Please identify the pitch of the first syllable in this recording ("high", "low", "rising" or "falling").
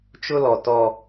high